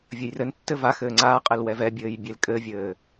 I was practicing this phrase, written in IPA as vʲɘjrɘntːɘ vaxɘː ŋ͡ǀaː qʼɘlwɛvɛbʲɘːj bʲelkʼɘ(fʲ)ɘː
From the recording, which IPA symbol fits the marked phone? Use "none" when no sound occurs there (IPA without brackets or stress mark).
vʲ